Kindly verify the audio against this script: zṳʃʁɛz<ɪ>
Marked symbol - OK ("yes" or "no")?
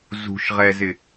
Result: yes